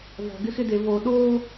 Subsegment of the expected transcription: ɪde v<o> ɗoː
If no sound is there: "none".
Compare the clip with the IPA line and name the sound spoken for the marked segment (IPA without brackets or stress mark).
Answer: o